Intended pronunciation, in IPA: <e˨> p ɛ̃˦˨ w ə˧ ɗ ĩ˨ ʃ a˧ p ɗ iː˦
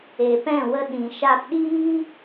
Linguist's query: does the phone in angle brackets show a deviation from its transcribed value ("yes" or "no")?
no